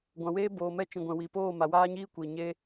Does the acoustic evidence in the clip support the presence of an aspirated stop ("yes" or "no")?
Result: no